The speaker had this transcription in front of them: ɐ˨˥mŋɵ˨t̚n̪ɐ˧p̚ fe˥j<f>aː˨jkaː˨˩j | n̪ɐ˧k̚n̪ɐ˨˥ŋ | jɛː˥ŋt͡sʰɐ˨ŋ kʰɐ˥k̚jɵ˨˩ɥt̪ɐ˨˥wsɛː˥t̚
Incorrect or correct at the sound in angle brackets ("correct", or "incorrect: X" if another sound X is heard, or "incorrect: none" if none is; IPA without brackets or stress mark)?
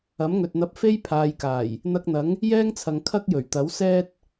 incorrect: pʰ